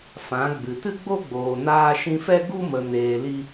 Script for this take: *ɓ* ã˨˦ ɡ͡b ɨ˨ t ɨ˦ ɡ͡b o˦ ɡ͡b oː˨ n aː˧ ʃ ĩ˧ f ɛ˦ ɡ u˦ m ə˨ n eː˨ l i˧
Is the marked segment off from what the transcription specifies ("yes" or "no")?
yes